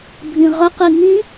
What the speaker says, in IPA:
bʱ ĩ ʁ ə q i ŋ ĩ

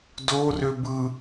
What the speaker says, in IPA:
d o r ø b ɯ

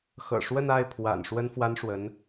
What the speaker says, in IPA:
x ɤ̰˨˩ ʂ w ə˥˧ n a˥˩ ɪ̯ pʰ w a̰˨˩ n ʂ w ə˥ n f w a˥ n ʂ w ə˧˥ n

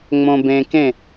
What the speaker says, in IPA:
ŋ͡m õ˧ b ẽ˧ k ẽ˥˨

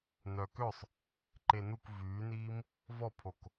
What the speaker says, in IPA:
n œ k ø sˤ | ǃ e n u k v yː n iː m | v ɔ pʰ o k

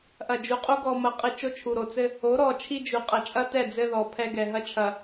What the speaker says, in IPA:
ʔ ɐ˨ d͡ʒ u˨ qʼ u˦ ɡ ɔ˨ m ɐ˨˦ qʼ ɨ˨ t͡ʃ o˦ t͡ʃʰ u˨ ɾ o˨ t͡s ɘ˦ | o˨˦ ɾ ɔ˨ t͡ʃʰ i˦ d͡ʒ u˨ qʼ ɐ˨ t͡ʃʼ ɐ˦ t ɛ˦˨ d͡z ɘ˦ ð ɔ˨ pʰ ɛ˦ ɡ ɛ˨ ɦ ɐ˦˨ t͡ʃʰ ɐ˨

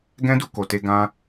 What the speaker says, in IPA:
ɡ ɛ̃˦ d u˧ k o˨ t e˧ ɡ ã˦

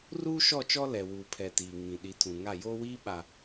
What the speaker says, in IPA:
r uː˦ ʃ ɔ˦˨ t͡ʃ ɔ˦ l ɛ˨ w uː˨ pʰ ɛ˨ t iː˨ ŋ ĩ˨ ɗ i˨˦ tʰ ũ˨ ŋ a˦˨ j oː˦ w iː˦ ɓ a˨

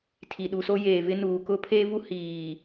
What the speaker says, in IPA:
tʰ i˨ ɗ u˨ s o˦ j eː˨ v ɪ˦ n uː˨ k ʊ˦ pʰ eː˦ v u˦ h iː˨

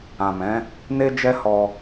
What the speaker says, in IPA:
ã˨ m ɛ̃˨˦ | n e˧ d͡ʒ ɛ˧ h ɔ˧

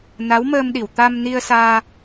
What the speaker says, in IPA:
n a˧˥ w m əː˧ m ɗ i˨˩˨ w t̪ a˧ m n i˧ ə̯ s aː˧

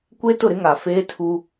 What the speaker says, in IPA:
kʷ e˦ t ʊ˦˨ ɾ ɪ˦ ŋ a˨ f eː˦ tʰ u˦

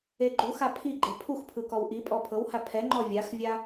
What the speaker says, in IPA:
e ɡ͡ǃ u x a pʰ i ɡ͡ǃ e pʰ u x pʰ ɯ k ɔ w ʔ i pʼ ɔ pʰ ɤ w h a pʰ ɛ ŋ͡ǃ ɔ vʲ a x vʲ a

